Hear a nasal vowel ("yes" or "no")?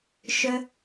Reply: no